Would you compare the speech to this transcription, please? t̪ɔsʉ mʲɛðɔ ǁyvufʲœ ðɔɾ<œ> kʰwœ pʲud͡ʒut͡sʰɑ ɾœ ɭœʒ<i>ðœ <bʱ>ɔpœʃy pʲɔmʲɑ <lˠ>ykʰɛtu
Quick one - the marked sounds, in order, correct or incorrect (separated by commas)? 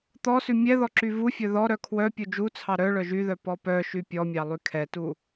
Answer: correct, incorrect, incorrect, correct